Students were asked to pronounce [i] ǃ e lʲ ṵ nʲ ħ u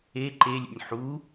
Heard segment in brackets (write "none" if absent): e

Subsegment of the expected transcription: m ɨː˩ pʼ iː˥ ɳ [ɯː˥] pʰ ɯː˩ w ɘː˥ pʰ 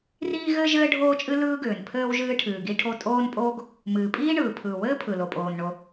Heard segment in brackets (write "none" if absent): ɯː˩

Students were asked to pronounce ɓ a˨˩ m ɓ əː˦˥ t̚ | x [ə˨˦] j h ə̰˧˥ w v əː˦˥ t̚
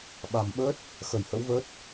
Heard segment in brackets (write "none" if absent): ə˧˩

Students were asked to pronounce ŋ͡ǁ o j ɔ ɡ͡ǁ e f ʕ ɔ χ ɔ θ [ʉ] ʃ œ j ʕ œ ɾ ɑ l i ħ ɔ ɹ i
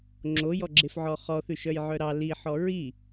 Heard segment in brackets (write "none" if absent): ʉ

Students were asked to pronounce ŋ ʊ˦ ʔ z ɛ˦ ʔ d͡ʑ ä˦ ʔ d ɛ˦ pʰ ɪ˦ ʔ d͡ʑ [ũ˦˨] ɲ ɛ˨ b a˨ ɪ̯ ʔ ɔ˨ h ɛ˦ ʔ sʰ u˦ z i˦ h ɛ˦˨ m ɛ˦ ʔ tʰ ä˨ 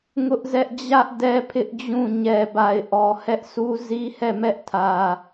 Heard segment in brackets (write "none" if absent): ũ˦˨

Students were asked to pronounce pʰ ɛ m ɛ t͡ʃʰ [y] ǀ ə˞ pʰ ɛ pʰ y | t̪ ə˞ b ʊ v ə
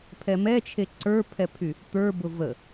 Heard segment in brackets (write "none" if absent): e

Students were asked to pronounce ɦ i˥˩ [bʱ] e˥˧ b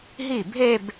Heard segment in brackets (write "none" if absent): bʱ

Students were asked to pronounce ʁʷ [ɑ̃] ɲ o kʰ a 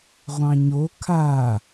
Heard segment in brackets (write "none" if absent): ɑ̃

